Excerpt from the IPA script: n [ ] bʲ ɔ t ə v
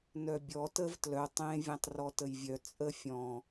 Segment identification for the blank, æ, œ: œ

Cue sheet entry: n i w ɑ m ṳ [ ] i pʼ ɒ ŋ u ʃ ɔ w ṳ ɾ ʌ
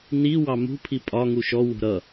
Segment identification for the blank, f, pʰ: pʰ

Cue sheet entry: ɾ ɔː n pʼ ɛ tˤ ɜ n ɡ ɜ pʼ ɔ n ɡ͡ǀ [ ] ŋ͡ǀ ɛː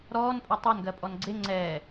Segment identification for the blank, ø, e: e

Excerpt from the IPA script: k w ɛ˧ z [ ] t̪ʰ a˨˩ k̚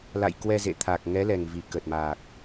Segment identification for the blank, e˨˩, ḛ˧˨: ḛ˧˨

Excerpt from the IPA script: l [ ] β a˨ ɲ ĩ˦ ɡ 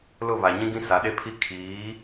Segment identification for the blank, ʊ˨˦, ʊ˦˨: ʊ˦˨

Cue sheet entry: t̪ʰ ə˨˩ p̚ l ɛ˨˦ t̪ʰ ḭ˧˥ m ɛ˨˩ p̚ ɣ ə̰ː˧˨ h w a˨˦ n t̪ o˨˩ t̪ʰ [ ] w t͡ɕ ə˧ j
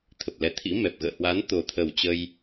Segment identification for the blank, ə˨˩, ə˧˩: ə˨˩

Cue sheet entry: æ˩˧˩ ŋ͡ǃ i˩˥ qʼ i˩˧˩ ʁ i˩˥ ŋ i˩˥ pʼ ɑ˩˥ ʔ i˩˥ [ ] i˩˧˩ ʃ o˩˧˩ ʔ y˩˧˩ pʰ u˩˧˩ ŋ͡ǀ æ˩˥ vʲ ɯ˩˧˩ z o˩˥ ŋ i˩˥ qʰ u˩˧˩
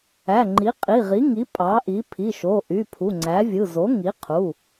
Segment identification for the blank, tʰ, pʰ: pʰ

